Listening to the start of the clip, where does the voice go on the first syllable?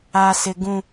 low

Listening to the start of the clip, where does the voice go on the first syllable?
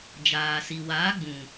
low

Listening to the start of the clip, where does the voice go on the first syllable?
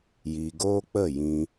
low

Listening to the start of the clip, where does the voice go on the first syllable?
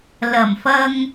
low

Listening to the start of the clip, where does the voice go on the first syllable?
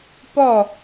falling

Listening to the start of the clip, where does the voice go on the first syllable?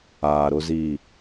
low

